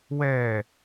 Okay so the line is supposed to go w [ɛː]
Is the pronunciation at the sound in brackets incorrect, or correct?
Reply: correct